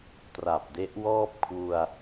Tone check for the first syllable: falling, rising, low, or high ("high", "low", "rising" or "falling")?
low